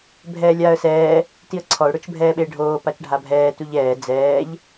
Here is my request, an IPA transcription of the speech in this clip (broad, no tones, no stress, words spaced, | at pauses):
bʱɛːlʲaːə̯sɛː | tiə̯ǀʰɔʊ̯ ɽʊt͡ʃbʱɛːɓeɖʱoː pat͡ʃɖʱabʱɛː tuʎɛː d͡zɛːʎ